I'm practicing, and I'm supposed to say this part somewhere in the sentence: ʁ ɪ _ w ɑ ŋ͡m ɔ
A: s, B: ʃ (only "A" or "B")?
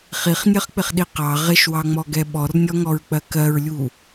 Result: B